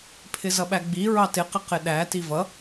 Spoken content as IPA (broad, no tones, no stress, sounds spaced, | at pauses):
pʰ ɪ z ʌ ɓ æ ɡ͡b i ɹ ɑ t ɪ q ɪ q ɪ ɗ æ t i v ʌ